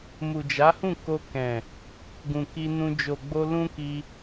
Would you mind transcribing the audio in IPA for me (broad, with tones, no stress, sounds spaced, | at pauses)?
m u˨ d͡ʒ a˨˦ h ũ˦˨ k o˧ k ɛ̃˨ | ɡ ũ˨ k i˧ n ũ˧ d͡ʒ o˨ ɡ͡b o˧ l ũ˦ k i˧